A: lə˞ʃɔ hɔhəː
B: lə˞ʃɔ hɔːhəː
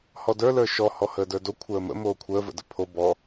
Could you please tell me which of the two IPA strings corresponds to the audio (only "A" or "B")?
A